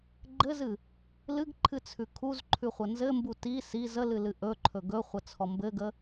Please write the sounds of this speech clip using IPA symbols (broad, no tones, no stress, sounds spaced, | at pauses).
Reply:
ɡ͡ǃ ɘ z ɨ | l ɨ ɡ ǃʰ ɨ t͡sʰ ʉ kʰ u z ǃʰ ʉ χʷ ə n z ɘ m b u t i s i z ə l ɨ l ɨ ʔ ɵ ǃʰ ɵ ɡ ɵ χʷ ə t͡sʰ ɔ m b ɘ ɡ ə